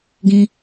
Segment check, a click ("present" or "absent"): absent